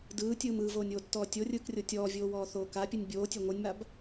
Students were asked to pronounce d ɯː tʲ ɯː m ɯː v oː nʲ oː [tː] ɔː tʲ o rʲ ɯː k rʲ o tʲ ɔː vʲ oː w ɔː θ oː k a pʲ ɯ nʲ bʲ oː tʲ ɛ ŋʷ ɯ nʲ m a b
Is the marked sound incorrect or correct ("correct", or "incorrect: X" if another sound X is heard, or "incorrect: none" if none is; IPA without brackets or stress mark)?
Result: correct